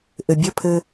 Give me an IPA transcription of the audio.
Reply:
ʔ ɘ bʲ ə pʰ ɘ

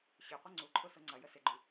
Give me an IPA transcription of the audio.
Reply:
ɕ ʏ qʷ ɪ ŋ͡ǀ u ǃʰ ʊ s ʊ ŋ͡ǀ ɐ j ə s ɪ ɡ͡ǃ y

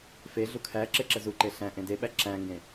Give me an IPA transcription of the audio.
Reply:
f e ɮ u kʰ æ ǁ e ǁ ə z u ǃ e ɬ æ̃ ʔ ẽ d e ɓ æ ǁ æ̃ ŋ ɡ ẽ

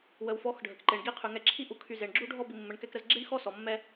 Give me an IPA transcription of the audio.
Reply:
w ə˨ w f ɔ˨˦ x ɖʱ ə˨ k ǃ e˨ ɳ ɡ i˦˨ qʰ y˨ ŋ ɛ˧ ǁʰ i˦ ʔ u˧ kʰ y˧ z e˨ ɳ ɡ͡ǁ u˦ ɖʱ ɔ˦ b i˧ mː ə˧ ɳ k ɛ˦ k ɾ ə˦ z ɡ͡ǁ i˦ ɳ x ɔ˦ s ɔ˨ mː ɛ˦

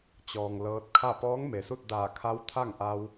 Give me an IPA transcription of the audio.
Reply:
t͡ɕ ɔː˩ ŋ l ɤː˧ t̚ kʰ a˥˨ p ɔː˧˥ ŋ m e˩ s u˥˨ t̚ d aː˧˩ kʰ a˧˥ w t̪ʰ a˥˨ ŋ ʔ a˧ w

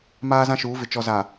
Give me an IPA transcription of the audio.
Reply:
m aː˦ z ã˦ ʃ uː˨˦ v ɪ˨ t͡ʃ ɔ˨ z a˨

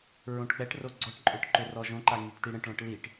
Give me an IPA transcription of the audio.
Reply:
ɹ õ ʈ k͡p ɛ ʈ r o ɡ͡ǀ ɔ ʈ ǃʼ ø ʈ ǃ ø r ɔ ʒ õ ǃ a ŋ i ʈ t i ɽ ə̃ ʈ ɭ ɔ̃ ʈ l i ʈ

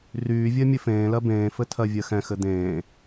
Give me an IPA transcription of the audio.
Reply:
r yː vʲ ɜ mʲ ɘ f ẽː l ɜ b ẽː f ɘ tʰ ɜ vʲ ɜ x ɛ̃ x ɘ d̪ ẽː

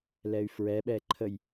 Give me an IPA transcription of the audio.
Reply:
l ɛ y̯ f ɹ ɛ ɓ ɛ ǃʰ ə j

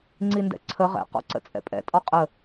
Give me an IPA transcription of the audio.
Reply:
ŋ͡ǀ i n d ɛ̰ ǀʰ ə ʁ ɛ̰ q ɔ̰ ǀ ə̰ t͡sʼ ɛ̰ pʼ ɛ̰ tʼ ɒ qʼ ə

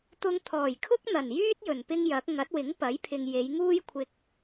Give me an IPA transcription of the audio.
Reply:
t̪ ʊ˧ ŋ t̪ʰ ɔː˨˩ j kʰ ʊ˥ k̚ n̪ ɐ˨˩ n j yː˥ t̚ j ɵ˨˩ n p ɪ˥ ŋ j ɐ˨˥ k̚ ŋ ɐ˨˥ t̚ w ɪ˨˥ ŋ p ɐ˨˥ j pʰ ɪ˨ ŋ j e˨˧ j ŋ uː˥ j kʷʰ ɪ˧ k̚

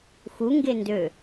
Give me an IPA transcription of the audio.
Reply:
x u ŋ ɡ e n d ø

